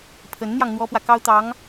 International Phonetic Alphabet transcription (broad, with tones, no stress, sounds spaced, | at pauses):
pʰ ə˧˥ n n̪ j ɑ˧ ŋ n̪ w ɔ˥ p w ä˨ k ɑ˥ ʊ̯ t̪ ɑ˧˥ ŋ